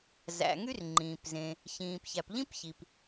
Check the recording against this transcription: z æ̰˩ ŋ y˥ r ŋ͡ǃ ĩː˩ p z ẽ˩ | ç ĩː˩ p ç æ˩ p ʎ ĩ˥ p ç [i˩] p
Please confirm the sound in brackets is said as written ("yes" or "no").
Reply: yes